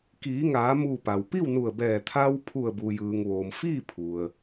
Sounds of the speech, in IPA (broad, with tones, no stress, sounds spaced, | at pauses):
k iː˩˧ ŋ aː˩˧ m uː˧˩ p a˩ w p i˥˨ w n u˧˩ ə̯ b ɛː˧˩ t̪ʰ a˧ w pʰ u˧˩ ə̯ b u˩ j ɯː˩ ŋ ʋ oː˩ m f iː˥˨ pʰ u˩ ə̯